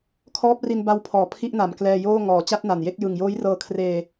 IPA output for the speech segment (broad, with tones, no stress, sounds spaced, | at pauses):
kʰ ɔː˦˥ p̚ r i˧ n b a˧ w pʰ ɔː˨˩ pʰ i˥˩ ʔ n a˨˩ m k l ɛː˧ j oː˥˩ ŋ ɔː˨˩ t͡ɕ a˥˩ t̚ n a˨˩ n j e˥˩ k̚ j ɯ˨˩ ŋ j oː˦˥ j r ɤː˧ kʰ r eː˧